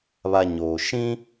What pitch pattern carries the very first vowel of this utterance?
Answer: low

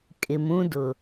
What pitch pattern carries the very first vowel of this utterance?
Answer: low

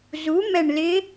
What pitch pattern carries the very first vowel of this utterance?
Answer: rising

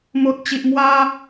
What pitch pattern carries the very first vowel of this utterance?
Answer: low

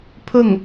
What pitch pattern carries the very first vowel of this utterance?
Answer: falling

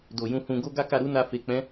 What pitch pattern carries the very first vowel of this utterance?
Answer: low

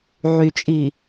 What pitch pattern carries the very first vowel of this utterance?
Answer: low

